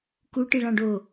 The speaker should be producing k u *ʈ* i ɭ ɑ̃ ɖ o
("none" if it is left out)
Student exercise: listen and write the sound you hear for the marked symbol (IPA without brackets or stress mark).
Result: ʈ